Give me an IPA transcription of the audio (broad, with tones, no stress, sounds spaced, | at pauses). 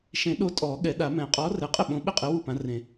ʃ ẽ˨˩˦ ɗ o˨˥ tʼ ɔː˨˩˦ ɠ ɛ˨˩˦ ɗ a˨˩˦ m ɛ̃˨˩˦ qʼ ɔː˨˥ r ɛ˨˩˦ qʼ ɪ˥˩ ɓ õ˨˥ ɓ ɪ˥˩ qʼ ɪ˨˥ w u˥˩ p ã˨˥ r ẽ˨˩˦